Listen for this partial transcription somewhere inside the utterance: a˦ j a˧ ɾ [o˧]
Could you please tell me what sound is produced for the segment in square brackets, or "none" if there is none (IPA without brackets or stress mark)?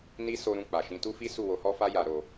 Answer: o˧